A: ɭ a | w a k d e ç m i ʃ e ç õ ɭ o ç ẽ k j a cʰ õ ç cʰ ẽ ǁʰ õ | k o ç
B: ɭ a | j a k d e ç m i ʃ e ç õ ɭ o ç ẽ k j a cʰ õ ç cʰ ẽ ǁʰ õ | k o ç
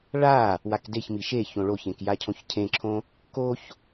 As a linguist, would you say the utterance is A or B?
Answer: A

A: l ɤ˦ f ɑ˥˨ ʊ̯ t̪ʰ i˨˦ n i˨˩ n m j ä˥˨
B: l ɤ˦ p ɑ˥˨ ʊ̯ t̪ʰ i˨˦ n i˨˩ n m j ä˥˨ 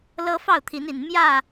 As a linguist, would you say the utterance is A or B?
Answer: A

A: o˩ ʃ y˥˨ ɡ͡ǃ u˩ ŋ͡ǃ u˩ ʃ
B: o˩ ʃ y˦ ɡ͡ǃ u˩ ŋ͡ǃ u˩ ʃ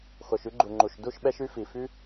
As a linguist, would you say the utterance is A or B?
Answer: B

